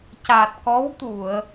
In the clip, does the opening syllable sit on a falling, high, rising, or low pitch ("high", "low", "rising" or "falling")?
low